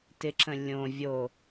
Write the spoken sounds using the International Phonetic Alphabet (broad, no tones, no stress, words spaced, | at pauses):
tɪǁə̃ lʲõ vʲo